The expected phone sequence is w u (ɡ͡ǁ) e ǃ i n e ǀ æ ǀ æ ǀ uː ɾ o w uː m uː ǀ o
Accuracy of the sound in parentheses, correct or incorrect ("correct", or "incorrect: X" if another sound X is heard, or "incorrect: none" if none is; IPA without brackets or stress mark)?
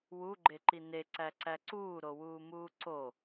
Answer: incorrect: ɡ͡ǃ